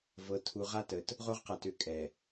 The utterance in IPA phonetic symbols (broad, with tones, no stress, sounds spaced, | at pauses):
v ɤ˨ tʰ u˨ ʁ a˦ t ə˨ t | ʁ o˦ ʁ q a˨ t ʏ˨˦ kʼ ɛ˨